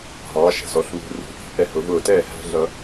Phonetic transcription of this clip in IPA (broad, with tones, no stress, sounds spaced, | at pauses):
ɦ ɑː˩˥ ʃ æ̤˩ s ɔ˧ ɬ β ṳ˧ r ṳ˩˥ ʔ i̤˩ ʔ ɛ˥˩ h ʊ˩˥ v ʊː˥˩ t ɛː˥˩ h æ̤˥ ɮ ʌ˧